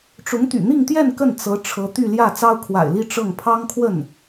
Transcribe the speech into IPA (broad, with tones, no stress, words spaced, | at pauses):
ʈ͡ʂʊ˧˥ŋt̪y̰˨˩n̪i˥˧ŋt̪jɛ˥˧n kə˥˩nt͡sɤ˧˥ ʈ͡ʂʰɤ˧˥t̪y˥˧ljä˥˩ t͡sɑ˥ʊ̯kʰwa̰˨˩ɪ̯li˥˧ ʈ͡ʂɤ˥˩ŋ pʰɑ˥ŋkʰwə˥˩n